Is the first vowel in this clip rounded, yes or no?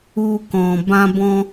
yes